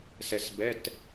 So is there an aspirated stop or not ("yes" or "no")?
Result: no